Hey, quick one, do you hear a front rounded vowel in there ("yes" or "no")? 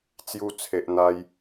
no